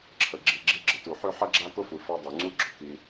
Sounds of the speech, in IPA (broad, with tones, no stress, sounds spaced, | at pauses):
ǁʰ ə˨ ɡ͡ǁ i˨ ɡ͡ǁ i˧ ɡ͡ǁ ə˨ t u˨ ħ ø˦ ħ ɐ˦ ɡ͡ǁ a˦ k ʊ˦ f u˨ f ɐ˧ dˤ u˨ ŋ͡ǀ u˦ ɡ͡ǁ ʊ˨ k i˧